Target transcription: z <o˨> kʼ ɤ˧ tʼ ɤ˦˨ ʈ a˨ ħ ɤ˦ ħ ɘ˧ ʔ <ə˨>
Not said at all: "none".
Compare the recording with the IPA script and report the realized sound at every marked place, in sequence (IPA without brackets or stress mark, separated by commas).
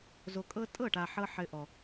o˨, ɔ˨